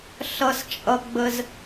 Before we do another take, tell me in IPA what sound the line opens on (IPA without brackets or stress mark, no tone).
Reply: ɬ